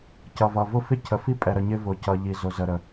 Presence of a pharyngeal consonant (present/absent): absent